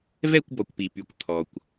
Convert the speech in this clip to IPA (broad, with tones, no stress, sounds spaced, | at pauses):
v ɛ˥˨ kʷ b ɔ˩ kʷ p i˩ p y˩ kʷ t̪ʰ ɔ˩ kʷ